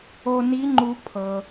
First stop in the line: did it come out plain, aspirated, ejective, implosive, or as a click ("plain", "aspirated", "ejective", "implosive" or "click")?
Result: click